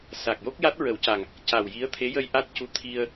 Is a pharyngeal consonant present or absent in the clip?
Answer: absent